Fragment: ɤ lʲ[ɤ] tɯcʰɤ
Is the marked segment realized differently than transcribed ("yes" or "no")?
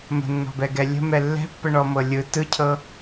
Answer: yes